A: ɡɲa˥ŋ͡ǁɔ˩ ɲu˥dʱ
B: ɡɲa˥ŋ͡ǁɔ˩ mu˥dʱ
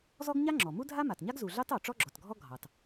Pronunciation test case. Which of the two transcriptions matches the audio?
B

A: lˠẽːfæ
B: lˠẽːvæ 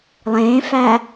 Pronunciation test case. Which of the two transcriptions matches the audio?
A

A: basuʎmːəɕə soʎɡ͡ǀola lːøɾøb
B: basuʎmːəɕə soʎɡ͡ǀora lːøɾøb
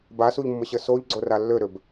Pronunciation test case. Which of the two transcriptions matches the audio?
B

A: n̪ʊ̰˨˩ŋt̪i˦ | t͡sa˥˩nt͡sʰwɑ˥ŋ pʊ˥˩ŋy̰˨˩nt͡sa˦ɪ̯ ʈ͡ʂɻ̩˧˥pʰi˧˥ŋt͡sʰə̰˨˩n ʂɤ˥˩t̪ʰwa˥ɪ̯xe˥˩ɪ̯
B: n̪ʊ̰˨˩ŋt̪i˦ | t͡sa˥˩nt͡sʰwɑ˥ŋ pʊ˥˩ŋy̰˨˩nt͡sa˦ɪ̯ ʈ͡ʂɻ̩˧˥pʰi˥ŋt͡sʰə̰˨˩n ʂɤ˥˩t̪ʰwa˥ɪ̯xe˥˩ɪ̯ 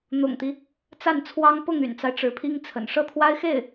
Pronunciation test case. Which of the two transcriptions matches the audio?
B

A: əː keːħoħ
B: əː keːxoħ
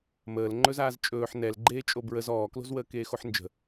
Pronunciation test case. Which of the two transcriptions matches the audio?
B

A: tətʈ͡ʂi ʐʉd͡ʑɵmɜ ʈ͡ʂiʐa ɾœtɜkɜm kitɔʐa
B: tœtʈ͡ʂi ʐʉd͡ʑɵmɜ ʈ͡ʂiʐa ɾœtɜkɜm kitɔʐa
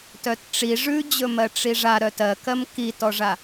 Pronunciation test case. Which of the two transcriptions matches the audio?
B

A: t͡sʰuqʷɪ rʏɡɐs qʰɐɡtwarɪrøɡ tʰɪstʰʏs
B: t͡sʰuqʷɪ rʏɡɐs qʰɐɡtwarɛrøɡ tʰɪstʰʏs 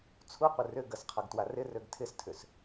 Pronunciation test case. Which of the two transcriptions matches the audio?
A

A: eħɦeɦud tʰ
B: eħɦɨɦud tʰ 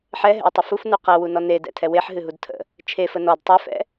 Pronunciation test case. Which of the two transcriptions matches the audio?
B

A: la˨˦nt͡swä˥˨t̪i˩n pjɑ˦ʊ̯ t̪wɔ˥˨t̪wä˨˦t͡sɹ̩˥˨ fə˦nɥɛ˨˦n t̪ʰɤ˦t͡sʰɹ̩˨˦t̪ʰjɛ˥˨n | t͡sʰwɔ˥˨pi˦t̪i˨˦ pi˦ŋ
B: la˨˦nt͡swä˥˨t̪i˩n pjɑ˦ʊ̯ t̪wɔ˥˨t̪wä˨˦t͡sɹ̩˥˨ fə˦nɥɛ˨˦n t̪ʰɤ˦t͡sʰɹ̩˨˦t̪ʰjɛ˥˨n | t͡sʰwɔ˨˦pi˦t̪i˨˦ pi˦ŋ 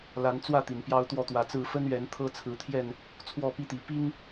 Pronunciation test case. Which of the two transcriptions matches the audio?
A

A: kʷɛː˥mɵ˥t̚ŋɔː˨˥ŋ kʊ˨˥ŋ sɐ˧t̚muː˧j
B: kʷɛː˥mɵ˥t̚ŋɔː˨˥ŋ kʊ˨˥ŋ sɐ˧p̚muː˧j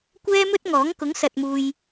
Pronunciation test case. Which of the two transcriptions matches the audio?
A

